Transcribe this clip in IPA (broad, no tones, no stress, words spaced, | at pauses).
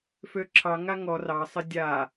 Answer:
føǁʰɑŋa ŋɔ rɑsˤɪ dʲa